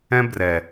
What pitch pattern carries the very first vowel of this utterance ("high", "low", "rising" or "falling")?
high